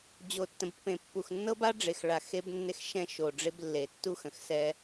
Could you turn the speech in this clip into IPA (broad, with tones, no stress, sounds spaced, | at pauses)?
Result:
d͡ʑ o˨ tː ə̃˨ b pː ẽ˨ pː u˨ x nː ɤ˦ b a˦ ɖ͡ʐ e˨ x ɭ a˨ x e˦ b nː e˦ x ʃ ɛ̃˦˨ ʃ o˨ ɖ͡ʐ e˦ b lː e˨ tː u˦ x ə̃˨ x s ɛ˦